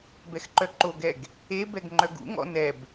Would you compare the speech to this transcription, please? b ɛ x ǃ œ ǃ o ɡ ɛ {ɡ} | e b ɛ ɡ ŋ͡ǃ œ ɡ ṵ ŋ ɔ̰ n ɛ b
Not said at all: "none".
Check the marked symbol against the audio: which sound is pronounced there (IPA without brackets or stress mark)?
ɡ